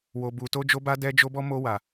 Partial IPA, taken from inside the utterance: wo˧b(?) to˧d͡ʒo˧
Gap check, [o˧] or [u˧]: u˧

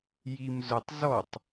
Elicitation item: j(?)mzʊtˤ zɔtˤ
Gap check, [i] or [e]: i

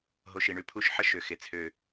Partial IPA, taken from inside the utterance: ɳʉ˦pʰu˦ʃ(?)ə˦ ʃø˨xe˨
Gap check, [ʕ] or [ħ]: ħ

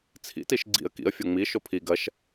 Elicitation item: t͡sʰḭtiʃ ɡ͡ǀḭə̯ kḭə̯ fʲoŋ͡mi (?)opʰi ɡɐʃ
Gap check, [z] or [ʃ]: ʃ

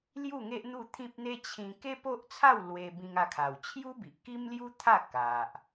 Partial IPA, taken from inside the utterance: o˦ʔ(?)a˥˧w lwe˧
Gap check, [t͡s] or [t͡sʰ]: t͡sʰ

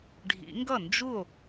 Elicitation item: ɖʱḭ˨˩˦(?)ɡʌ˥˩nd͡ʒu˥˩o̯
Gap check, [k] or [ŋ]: ŋ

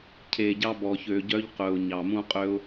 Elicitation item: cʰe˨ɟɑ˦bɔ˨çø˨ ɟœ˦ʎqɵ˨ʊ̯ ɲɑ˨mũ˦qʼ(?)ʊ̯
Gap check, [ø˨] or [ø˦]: ø˦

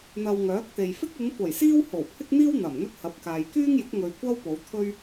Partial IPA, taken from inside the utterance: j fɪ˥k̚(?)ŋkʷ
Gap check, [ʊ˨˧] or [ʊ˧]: ʊ˨˧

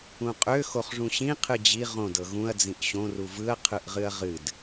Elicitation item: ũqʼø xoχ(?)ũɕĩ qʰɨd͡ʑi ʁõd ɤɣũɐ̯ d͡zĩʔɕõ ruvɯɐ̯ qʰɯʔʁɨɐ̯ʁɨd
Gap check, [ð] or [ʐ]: ʐ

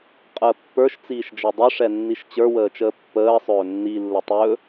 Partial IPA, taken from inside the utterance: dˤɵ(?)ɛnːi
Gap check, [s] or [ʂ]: ʂ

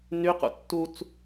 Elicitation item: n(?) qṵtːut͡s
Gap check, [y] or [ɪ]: y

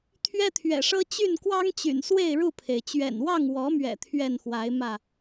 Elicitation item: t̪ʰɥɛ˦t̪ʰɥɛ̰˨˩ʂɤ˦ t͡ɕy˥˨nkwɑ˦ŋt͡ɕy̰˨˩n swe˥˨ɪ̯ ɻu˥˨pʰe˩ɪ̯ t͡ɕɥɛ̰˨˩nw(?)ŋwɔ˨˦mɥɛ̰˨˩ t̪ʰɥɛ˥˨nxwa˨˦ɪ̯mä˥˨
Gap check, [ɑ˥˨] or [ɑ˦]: ɑ˥˨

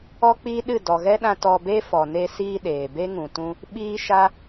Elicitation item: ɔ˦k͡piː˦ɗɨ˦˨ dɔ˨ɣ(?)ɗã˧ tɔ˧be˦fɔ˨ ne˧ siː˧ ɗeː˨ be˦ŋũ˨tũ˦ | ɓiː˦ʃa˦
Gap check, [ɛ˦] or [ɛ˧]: ɛ˦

